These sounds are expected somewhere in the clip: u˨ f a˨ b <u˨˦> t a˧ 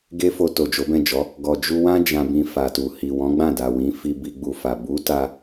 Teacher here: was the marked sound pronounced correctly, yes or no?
yes